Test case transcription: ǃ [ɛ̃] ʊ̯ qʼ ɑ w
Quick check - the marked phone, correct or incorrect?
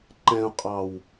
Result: correct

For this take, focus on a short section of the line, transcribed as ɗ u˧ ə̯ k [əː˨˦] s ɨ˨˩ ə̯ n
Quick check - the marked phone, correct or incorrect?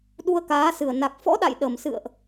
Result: incorrect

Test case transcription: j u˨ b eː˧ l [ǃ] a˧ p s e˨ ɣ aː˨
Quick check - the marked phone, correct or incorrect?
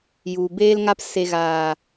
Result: incorrect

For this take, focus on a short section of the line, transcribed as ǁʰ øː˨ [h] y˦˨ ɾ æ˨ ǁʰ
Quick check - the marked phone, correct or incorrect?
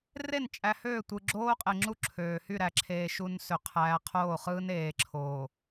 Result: correct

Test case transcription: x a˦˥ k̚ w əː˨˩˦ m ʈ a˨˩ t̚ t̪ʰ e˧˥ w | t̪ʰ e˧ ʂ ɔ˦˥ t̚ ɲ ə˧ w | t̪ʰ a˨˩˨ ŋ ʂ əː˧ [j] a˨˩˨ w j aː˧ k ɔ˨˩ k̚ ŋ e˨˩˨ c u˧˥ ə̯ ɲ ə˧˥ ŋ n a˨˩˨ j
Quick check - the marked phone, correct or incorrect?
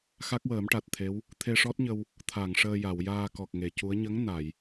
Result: correct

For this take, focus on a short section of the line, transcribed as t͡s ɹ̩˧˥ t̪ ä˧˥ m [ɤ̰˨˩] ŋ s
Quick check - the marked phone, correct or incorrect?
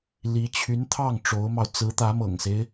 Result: correct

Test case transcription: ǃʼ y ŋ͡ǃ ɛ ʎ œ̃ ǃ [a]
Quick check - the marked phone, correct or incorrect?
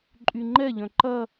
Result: incorrect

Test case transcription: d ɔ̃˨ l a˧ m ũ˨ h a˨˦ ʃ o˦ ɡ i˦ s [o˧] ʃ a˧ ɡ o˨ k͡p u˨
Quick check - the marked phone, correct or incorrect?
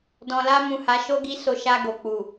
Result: correct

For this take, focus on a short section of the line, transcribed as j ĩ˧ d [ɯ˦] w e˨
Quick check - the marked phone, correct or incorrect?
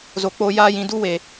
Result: incorrect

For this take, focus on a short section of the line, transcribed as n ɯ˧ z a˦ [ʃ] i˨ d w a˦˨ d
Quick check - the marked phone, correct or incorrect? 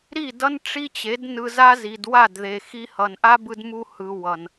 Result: incorrect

